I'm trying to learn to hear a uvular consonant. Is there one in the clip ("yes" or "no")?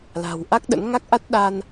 no